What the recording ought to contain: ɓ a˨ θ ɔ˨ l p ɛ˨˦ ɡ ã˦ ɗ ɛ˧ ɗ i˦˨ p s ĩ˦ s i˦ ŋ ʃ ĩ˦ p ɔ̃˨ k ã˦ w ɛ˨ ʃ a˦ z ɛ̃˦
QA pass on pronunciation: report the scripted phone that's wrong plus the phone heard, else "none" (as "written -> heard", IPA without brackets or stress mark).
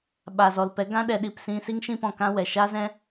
θ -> z